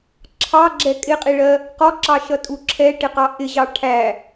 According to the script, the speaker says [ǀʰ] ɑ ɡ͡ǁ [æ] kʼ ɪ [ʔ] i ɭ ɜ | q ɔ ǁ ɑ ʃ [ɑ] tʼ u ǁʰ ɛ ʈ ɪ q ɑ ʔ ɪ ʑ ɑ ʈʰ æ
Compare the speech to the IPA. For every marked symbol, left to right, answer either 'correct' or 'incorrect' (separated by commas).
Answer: incorrect, incorrect, incorrect, incorrect